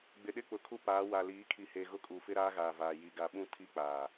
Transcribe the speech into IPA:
ɡ͡bɪ˨ɗɪ˦k͡pʊ˨kʰu˦ paː˨˦ wa˨liː˨˦kʰi˨ he˨ɣʊ˦kʼu˨fɪ˦ ɾaː˦ɣaː˨vaː˨ ji˨ɡa˨ɓũ˦ tʰi˦k͡paː˨

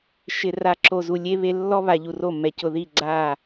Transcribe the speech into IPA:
ʃɪ˨ra˨ ǁo˨zu˨lʲe˦βe˦ lːɔ˦βa˨ ʎu˨ro˦˨mːɛ˨ cʊ˨ði˦˨ ɡ͡ǀa˦˨

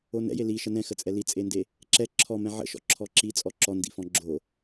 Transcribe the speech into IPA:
onɛ̰je liʃə nɛ̃xət͡sʼɛ lit͡sʼende | ǁɛ ǁʰɔmɛ̃ ʕə̰ʃɔ̰ ǁʰɔǁi t͡sʼɔǁɔndḭfɔ̃ ɡ͡ǁo

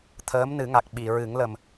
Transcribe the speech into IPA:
t̪ʰəː˧˥mnɨ˨˩˦ŋa˨˩k̚ ɓi˨˩˨ɹɨ˨˩˦ŋlə˨˩m

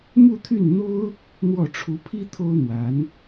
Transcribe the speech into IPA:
mu˥˧t̪ʰy˥˩nn̪o˥ʊ̯ | n̪wɔ˥˩ʈ͡ʂʰu˧˥ pʰi˥ t̪ʰo˥ʊ̯n̪wa˧˥n

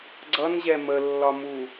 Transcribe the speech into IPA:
ɡ͡ǀʌnʑɛ məlːɒmu

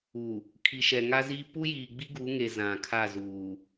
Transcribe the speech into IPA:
u˨ | kʰi˨ʃɛ˨ŋa˦ziː˦ pu˦jiː˨ɡ͡bi˦ ɡu˨˦ŋe˨ zã˨kʰa˦˨zuː˨

